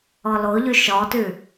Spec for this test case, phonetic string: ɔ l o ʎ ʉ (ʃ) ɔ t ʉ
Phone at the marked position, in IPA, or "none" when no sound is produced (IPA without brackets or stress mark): ʃ